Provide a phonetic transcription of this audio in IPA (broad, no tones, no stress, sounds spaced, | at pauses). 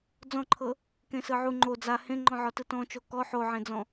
d͡z ɔ̃ ǃʰ ɤ | k ẽ s ɯ ʕ u ŋ͡ǃ o d͡z a h ẽ ŋ͡ǃ ɔ̃ ʕ ɔ t ɯ t ɔ̃ t͡ʃ o k ɔ ħ o ʕ ẽ d͡z ɔ̃